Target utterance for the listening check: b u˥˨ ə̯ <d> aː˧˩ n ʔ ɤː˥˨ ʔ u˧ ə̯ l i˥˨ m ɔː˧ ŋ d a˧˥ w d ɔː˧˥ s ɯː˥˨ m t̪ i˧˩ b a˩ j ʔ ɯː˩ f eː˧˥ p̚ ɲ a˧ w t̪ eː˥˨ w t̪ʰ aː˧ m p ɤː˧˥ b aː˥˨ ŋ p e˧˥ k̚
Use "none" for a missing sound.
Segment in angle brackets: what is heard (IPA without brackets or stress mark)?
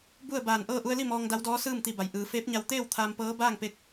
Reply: b